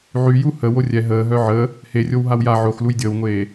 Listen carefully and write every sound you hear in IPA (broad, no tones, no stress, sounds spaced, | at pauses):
ʕ y j u h ə w o rʲ ɛ ɦ əː ɦ œ ʕ ə | h e rʲ o w ɦ a w j a ʕ o x l u j dʲ əː w ŋʷ eː